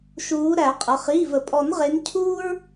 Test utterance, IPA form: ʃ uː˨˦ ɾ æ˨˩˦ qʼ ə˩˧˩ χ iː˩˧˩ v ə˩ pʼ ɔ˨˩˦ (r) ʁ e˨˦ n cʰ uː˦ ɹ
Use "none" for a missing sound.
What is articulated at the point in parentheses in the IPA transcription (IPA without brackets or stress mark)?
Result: n